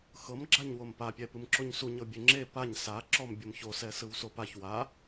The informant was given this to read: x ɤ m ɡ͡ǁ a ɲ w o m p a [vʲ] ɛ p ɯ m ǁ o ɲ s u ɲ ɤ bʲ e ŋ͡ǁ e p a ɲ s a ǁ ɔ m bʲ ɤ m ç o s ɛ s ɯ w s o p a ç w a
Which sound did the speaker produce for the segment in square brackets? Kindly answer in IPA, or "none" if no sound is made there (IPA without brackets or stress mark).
pʲ